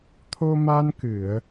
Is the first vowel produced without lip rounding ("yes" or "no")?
no